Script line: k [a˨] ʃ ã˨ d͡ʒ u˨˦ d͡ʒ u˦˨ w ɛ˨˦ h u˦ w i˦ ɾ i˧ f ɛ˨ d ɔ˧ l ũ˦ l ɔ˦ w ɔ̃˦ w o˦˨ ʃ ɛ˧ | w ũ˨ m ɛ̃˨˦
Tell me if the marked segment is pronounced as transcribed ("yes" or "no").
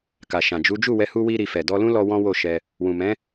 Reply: yes